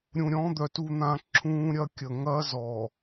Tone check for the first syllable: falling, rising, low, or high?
low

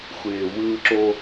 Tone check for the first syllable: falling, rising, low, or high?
low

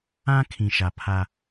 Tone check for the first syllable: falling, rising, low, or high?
high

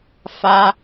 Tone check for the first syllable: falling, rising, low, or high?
high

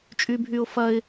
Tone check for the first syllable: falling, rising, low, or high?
high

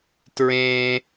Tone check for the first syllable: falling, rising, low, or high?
low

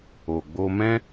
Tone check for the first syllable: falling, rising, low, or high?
low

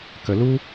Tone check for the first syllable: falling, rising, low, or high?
low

